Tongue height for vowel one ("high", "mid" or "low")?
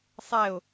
mid